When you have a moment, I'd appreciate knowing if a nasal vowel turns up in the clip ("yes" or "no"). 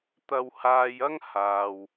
no